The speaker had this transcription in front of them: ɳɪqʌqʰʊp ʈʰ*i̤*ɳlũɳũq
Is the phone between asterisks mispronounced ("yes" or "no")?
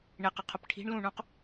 no